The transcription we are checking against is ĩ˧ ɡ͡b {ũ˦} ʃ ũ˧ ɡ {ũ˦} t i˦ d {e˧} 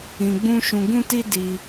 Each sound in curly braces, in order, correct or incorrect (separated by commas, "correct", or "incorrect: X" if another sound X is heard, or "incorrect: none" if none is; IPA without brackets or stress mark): correct, correct, incorrect: i˧